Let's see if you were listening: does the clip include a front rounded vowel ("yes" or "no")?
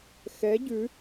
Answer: no